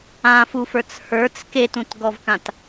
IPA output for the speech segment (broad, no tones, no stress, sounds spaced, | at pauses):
ã f u f ə˞ t͡s h ə˞ t͡s k e t ũ t ɡ ɔ v k ã t